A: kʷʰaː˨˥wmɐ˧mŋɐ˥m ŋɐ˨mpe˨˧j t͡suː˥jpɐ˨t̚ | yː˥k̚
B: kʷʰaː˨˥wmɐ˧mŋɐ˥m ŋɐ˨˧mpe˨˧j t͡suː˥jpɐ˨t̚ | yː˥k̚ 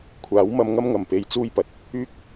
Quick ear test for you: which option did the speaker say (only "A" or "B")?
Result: A